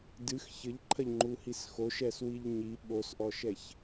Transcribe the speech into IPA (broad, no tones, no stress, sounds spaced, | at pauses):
d ɨ x ç ɘ ʎ ǃʰ ɐ ʎ ŋ͡ǃ u h i s x o ʃ ɛ s w i ʎ ɲ i ɓ o s ʔ ɔ ʃ ɛ ç